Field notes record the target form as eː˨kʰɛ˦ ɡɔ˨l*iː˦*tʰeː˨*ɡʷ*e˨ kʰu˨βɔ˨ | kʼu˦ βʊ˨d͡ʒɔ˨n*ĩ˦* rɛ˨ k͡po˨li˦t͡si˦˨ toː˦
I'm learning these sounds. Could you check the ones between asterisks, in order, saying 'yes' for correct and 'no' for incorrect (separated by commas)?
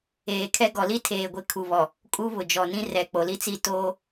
no, yes, yes